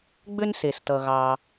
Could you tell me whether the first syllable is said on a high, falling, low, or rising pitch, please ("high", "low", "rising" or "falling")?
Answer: high